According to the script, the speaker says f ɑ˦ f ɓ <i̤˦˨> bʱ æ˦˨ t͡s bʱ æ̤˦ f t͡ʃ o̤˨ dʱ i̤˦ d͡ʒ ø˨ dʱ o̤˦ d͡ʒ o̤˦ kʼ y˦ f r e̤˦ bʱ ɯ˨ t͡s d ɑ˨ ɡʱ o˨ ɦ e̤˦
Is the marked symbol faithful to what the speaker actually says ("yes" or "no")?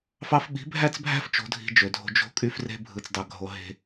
no